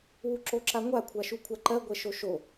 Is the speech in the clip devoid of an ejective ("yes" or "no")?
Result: yes